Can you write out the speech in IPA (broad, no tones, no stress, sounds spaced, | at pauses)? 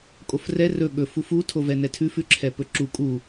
kʼ o f r ɛ r ɵ ɠ ɵ f u f u tʰ o v ɛ n ɛ tʰ ʉ f ʉ ǁʰ ɛ p ɵ ǁ u kʼ u